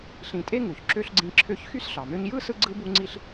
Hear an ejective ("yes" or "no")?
yes